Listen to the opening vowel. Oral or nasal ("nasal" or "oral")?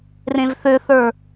nasal